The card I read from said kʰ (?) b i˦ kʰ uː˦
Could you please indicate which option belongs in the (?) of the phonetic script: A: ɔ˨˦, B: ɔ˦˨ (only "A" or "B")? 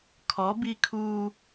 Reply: A